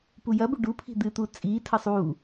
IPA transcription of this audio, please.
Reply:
p u j ɐ b u ɖ u pʰ i̤ d̪ ɨ t̪ u t͡sʼ iː tʰ ɐ sˤ uː

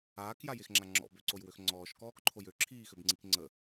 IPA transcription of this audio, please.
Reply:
aː k j a j e x ŋ͡ǁ a ŋ͡ǁ ɔ̰ b ø ǀ o j w ø x ŋ͡ǀ ɔː ʃ k ɔː k ǃʰ o j ø ǁʰ iː x ø b ŋ͡ǀ i k ŋ͡ǀ ə

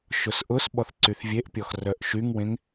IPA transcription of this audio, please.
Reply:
ʃ ʊ s ʔ ʊ s ɓ ɔ θ ǀ y θ vʲ e ʔ pʲ ɔ x r œ ʔ ʃ y ŋ w ẽ ŋ

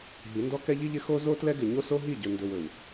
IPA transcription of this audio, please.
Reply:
ɦ i˨˦ n d ɔ˦ k ɛ˦ ʎ i˦ ʎ ɪ˦ x o˦ z o˦ t l ɛ˦ ɡ ɪ˨ ɲ o˦ s o˦ ɦ i˦˨ ɟ ɵ˨ n d ɵ˨ w ɵ˨ w

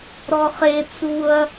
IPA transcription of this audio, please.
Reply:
ɾ ɔ χ e t͡s u ɐ̯

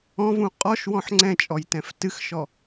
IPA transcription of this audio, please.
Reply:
ɔ̃ v ũ qʼ ɔ ʃ w ɔ̃ ħ ŋ͡ǀ ɛ̃ t͡ʃʼ ɔ j t ɛ̃ f t ɨ x ʃ ɔ

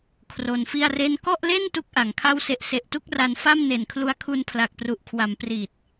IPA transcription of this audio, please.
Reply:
kʰ r o˧ n f i˥˩ a̯ r e˥˩ n k ɔ˥˩ ʔ l e˥˩ n t u˥˩ k̚ ʔ a˩˦ ŋ kʰ a˥˩ w s e˦˥ ʔ s e˨˩ ʔ t u˥˩ k̚ r a˧ n f a˥˩ m n e˨˩ n kʰ l u˧ a̯ kʰ u˧ n pʰ l a˨˩ k̚ p r u˨˩ ʔ kʰ w a˩˦ m p r i˨˩ t̚

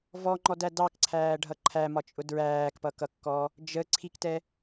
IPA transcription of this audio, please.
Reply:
v ɔ ŋ͡ǃ ɔ d æ d ɑ k ǀʰ æː ɖʱ ʌ ǃʰ æ m ɒ t͡ʃʼ ʊ d ɹ æː k p ʌ k ʌ kː ɔ | d͡ʒ ə ǀʰ i k t ɛ

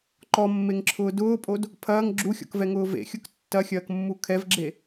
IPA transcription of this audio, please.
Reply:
ǃ ɔ mː e ŋ ǁʰ ʊː d ʊː pʼ o d | pʰ ɐː ŋ ɡ͡ǁ u xʲ ɔ̰ k v ɛ ŋ ʊː v ḛ xʲ ʊ k tː ɐ xʲ ɐː k mː u kʰ ɛ v ɡ͡ǁ e

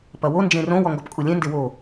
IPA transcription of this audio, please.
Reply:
p ɐ w o n d͡ʒ ẽ r õ w ɔ ŋ ɡ ɔ p kʼ u lʲ ẽ n d e w o

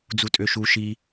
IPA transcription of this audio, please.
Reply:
d͡z u tʼ ø ʃ u ʃ i

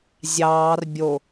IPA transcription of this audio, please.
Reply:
zʲ ɑː r bʲ o

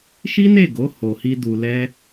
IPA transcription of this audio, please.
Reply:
ʃ i˦ n e˦˨ ɡ o˨˦ h o˧ h i˦ d u˧ l ɛ˦

